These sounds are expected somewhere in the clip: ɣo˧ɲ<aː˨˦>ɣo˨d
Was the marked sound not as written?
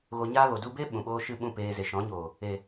yes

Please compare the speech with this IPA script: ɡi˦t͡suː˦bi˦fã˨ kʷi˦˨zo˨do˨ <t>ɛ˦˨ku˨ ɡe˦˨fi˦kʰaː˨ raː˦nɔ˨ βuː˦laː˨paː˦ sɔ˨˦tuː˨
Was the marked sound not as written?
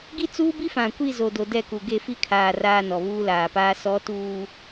yes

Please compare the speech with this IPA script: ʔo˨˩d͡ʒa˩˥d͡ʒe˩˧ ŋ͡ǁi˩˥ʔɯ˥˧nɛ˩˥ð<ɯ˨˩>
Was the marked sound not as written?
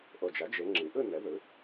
yes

